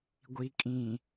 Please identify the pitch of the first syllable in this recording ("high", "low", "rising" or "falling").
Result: low